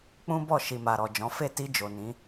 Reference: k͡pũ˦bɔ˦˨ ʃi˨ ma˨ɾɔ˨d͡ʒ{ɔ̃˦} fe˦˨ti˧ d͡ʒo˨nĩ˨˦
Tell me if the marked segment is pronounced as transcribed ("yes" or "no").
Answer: no